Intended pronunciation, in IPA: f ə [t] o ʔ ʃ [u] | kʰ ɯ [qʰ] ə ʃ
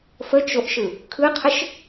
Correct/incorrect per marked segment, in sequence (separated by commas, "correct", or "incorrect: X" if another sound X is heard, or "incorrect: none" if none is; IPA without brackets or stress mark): incorrect: t͡ʃ, incorrect: ɯ, correct